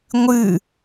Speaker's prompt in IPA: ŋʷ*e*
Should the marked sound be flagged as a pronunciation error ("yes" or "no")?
yes